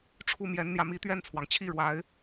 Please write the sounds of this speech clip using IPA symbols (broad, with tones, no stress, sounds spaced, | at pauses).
ʈ͡ʂʰ u˥˩ m j ɛ˧˥ n n̪ j ä˧ m i˧˥ t̪ ɥ ɛ˥˩ n t͡sʰ w ɑ˩ ŋ t͡ɕʰ i˥˩ ɻ w a˧˥ ɪ̯